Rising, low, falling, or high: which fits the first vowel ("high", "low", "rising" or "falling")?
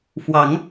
rising